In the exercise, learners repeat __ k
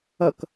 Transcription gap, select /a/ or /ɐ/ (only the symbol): ɐ